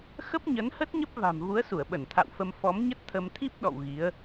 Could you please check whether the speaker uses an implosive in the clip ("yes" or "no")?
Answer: yes